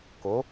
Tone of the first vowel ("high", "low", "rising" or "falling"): rising